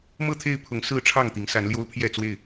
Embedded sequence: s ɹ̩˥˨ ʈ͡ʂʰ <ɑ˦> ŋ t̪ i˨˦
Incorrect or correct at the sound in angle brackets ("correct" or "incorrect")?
incorrect